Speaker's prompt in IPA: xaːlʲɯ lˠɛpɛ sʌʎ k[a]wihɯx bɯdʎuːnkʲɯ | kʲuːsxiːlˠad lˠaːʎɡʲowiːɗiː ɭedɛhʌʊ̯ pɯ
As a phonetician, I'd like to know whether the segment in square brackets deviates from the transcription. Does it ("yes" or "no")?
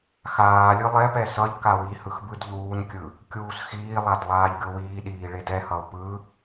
no